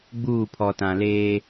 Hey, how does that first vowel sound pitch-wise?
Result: falling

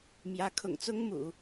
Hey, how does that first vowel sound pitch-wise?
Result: rising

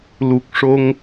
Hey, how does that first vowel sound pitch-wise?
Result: low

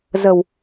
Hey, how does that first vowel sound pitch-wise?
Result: low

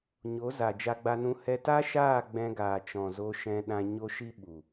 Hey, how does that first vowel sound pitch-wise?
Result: rising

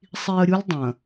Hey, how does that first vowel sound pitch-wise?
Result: low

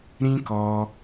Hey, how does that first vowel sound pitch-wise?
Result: high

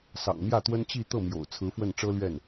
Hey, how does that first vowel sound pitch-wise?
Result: low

